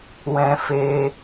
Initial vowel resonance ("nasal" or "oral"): nasal